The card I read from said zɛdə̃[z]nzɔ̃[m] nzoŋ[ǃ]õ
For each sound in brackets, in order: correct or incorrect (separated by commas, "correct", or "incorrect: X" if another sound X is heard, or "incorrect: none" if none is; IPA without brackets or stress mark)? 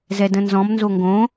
incorrect: none, correct, incorrect: ɡ